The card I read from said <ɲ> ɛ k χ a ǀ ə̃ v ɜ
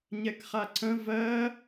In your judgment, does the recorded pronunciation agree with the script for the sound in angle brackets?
yes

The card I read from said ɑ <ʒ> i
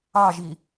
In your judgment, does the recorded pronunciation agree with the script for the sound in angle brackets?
yes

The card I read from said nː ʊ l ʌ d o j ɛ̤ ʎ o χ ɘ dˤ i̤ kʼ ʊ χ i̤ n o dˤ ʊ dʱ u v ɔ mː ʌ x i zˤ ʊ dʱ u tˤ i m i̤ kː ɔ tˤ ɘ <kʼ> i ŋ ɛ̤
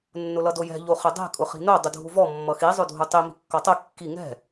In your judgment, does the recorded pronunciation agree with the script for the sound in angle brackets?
no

